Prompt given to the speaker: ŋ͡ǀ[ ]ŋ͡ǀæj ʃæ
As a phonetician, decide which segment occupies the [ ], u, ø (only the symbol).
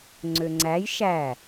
ø